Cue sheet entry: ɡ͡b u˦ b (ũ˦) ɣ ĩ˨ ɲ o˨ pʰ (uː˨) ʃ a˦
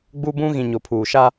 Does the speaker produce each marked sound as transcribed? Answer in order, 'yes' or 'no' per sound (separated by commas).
yes, yes